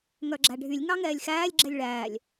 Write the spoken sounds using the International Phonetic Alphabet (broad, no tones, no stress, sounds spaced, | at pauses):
ŋ œ ɡ͡ǁ æ ɖʱ y lʲ ŋ ɑ ŋ ɛː lʲ x æː lʲ ɡ͡ǁ ɛ lʲ ɭ æː lʲ